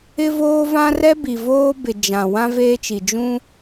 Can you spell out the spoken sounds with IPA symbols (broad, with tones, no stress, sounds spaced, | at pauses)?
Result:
ɪ˦ v oː˦ v ã˦ r ɛ˦ b i˨ v oː˦ b ɪ˨ d͡ʒ ã˨ w ã˦ v eː˦ t͡ʃ i˨ d͡ʒ ũ˦